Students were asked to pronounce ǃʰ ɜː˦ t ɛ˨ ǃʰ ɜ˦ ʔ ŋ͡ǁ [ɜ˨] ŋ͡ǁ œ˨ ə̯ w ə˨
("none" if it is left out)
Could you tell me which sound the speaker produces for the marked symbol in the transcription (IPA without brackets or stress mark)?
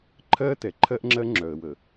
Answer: ɜ˦